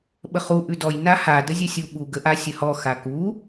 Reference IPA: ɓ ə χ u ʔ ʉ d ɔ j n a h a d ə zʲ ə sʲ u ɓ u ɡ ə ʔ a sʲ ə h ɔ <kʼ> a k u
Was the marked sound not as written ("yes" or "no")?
yes